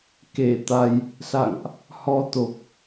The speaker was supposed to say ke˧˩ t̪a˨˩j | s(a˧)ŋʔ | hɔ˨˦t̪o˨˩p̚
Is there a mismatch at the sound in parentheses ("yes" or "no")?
yes